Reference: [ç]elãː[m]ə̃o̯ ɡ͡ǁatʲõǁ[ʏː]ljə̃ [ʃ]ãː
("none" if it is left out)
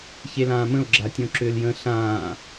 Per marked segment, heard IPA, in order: ç, m, ʏː, ɬ

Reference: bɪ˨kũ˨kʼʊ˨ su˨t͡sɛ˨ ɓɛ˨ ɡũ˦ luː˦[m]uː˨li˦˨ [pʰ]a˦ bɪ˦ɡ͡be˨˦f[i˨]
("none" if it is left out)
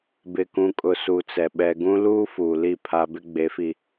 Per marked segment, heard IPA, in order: f, pʰ, i˨

